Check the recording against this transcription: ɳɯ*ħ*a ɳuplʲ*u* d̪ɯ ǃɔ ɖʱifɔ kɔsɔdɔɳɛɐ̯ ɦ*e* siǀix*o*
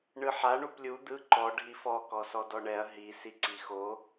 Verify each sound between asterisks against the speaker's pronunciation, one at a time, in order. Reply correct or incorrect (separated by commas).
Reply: correct, correct, incorrect, correct